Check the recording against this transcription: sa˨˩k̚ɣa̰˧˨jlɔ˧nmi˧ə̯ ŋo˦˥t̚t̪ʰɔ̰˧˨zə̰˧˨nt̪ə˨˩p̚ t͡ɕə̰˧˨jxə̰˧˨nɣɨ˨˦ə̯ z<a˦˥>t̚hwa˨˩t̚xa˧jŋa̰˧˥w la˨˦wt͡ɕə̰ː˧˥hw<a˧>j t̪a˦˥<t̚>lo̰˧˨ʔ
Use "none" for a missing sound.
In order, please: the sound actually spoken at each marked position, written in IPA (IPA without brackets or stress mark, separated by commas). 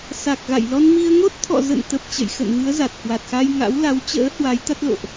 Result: a˨˩, a˨˦, t̚